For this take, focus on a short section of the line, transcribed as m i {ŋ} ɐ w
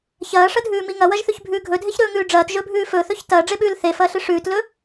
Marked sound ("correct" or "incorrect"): correct